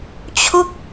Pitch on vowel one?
falling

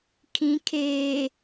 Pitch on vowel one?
rising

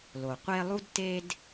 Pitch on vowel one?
low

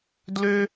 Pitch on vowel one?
high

